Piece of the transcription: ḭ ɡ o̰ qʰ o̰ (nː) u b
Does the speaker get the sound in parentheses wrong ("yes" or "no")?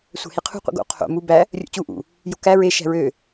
yes